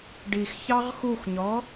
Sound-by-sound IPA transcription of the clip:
ɖ i x ç ɑ ʁ x u x ɲ ɔ

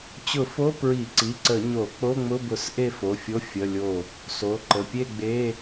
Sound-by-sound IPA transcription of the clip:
t͡ɕ ʊ˧˩˧ f o˧˥˧ p ɹ i˧˩˧ ǀ i˩˧˩ ǀ ə˧˩˧ ɲ o˧˩˧ k͡p o˧˥˧ ŋ͡m ʊ˧˥˧ b ʊ˧˩˧ s ʔ e˥˨ f o˩˧˩ fʲ o˧˥˧ fʲ ə˧˥˧ lʲ o˥˨ | s o˩˧˩ ǃ ə˩˧˩ pʲ e˥˨ ɡ͡b e˧˥˧

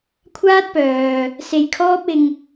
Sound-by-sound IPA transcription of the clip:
kʷʰ aː˥ t̚ p œː˨ | s e˧ j kʰ ɔː˥ p̚ ɪ˧ ŋ

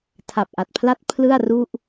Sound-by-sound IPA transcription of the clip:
tʰ a˨˩ p̚ ʔ a˨˩ t̚ pʰ l a˦˥ t̚ pʰ l ɯ˥˩ a̯ r u˥˩ ʔ

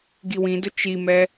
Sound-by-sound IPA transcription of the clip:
ɡ i w ĩ d ʊ t͡ʃ i m ɛ

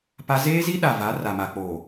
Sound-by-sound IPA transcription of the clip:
p a˦ z eː˦ z i˦ ɗ a˨ v a˨˦ r a˨ m a˨ k͡p oː˨

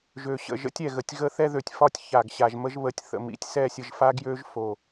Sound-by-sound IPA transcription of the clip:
ʒ ø˨ ɕ ə̰˨ ʒ ə̰˦ tʲ ɛ˨ ɣ ə˨ tʲ ɣ ə˦ θ ɛ˦ ð ø˨ tʲ f ɒ˦ tʲ ç a˨ ɡ ɕ a˨ ʒ m ə˦ ʒ β ə˨ tʲ θ ə̰˨ m ḭ˨ tʲ s ɛ˦˨ sʲ ə˨ ʒ f a˦ ɡ j ø˦ ʒ f o˨

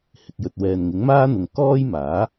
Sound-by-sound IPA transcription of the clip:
h ɪ˨ k̚ j ɵ˨ t̚ w ɛː˨ n ŋ ɪ˨˥ ŋ m aː˥ n̪ ʊ˨ ŋ k ɔː˥ j m aː˨˥

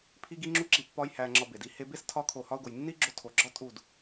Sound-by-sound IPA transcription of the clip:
pʰ i˦ ɡ i˦ ŋ͡ǁ u˦ ǁ i˧ pː ɒ˦ j h æ˧ ŋ͡ǁ ɒ˧ b e˨ d i˧ h e˧ b e˦ s tʰ ɒ˦ kʰ o˧ h ɒ˧ ʊ̯ ɡ o˨ j nː i˦ ɡ͡ǁ o˧ tʰ o˨ ɡ͡ǁ ɒ˦ tʼ u˦˨ d

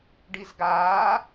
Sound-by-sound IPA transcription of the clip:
ɖ i z ɡ aː

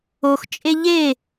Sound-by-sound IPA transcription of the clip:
o x t͡ʃʼ e ʎ e

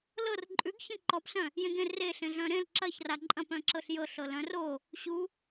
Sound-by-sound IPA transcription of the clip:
l ɤ r ǃʼ ʉ ɡ ç ẽ ǃ ɔ p s œ̃ | j ẽ ɡ ẽ r e ɬ ẽ ɮ œ̃ ɾ ẽ l ǁ ɐ ç r a ǃʼ ɐ̃ p œ̃ ǁ ɤ ɬ j ɤ ɬ ɤ l œ̃ r o | ɕ u

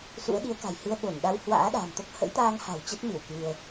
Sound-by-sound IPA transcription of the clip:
s ṵ˧˥ ə̯ ɗ i˨˦ ə̯ k a̤˨˩ j h ɨ˧ ə̯ ɓ o˧˩ n ɗ a˧ w h w a̰ː˧˥ ɗ a̤ː˨˩ m t̪ o˦˥ k̚ h ə̰˧˥ j t̪ aː˧ ŋ h a̤˨˩ w t͡ɕ ə˦˥ t̚ m ɨ˧˩ w k ɨ˧ ə̯

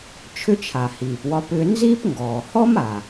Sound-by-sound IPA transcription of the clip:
t͡ʃʰ ʏ˥ t͡ʃʰ a˩ h iː˩ p w ɒ˧ p ʏː˧ n z iː˥ p ŋ ɡ ɔː˩ h ɔ˥ m a˩

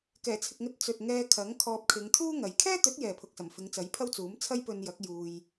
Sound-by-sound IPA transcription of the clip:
k ɛː˨˩ t͡sʰ ɪ˨ k̚ ŋ ɵ˧ t̚ t͡s ɵ˨ t̚ ŋ ɛː˧ kʰ ɐ˨˥ ŋ kʰ ɔː˧ p̚ kʰ ɪ˨˧ ŋ t̪ʰ uː˥ ŋ ɐ˨˧ j kʰ ɛː˥ t̪ ɵ˨˥ t̚ j ɛː˨ pʰ ʊ˨ k̚ s ɐ˨˩ m f ɪ˨˧ ŋ t͡s ɐ˨˥ j pʰ ɐ˥ w t͡s uː˨˥ m t͡sʰ ɐ˥ j p ɵ˧ n j ɐ˨˥ k̚ j uː˧ j

